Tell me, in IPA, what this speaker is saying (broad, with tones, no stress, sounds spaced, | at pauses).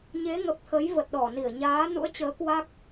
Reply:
ɲ e˨˦ ŋ ə˨˩ p̚ t̪ʰ ə˨˦ j v ə˨˩ t̚ ɗ ɔ˧˩ n i˧˩ ə̯ ɲ aː˨˦ n ṵ˧˥ ə̯ t͡ɕ əː˨˦ k w a˦˥ k̚